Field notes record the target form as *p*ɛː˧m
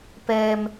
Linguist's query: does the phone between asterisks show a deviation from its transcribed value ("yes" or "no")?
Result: no